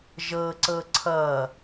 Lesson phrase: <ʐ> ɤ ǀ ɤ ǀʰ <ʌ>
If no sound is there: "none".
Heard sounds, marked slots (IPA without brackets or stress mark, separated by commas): ʒ, ʌ